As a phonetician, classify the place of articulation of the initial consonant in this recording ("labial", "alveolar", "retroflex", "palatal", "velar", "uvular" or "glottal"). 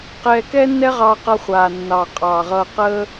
uvular